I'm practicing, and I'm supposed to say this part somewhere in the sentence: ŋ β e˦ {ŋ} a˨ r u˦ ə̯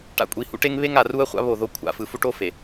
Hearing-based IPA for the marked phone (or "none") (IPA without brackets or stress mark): ŋ